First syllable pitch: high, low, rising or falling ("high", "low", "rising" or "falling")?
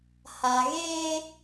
low